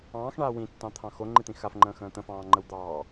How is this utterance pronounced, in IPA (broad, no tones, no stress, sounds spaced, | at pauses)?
ɑ̃ː x ɳ aː w ĩ tː ɑ̃ t̪ʰ ɑ̃ x o ŋ͡ǃ i t̪ ĩ x a f ŋ͡ǃ ə̃ː x ə̃ː t̪ ə̃ f ɑ̃ː ŋ͡ǃ ə w d̪ ɑː